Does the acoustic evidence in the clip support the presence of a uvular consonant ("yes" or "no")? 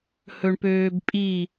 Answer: no